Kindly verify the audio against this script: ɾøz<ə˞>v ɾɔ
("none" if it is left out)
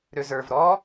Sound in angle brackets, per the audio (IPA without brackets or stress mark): ə˞